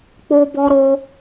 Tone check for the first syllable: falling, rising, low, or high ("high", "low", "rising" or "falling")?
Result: high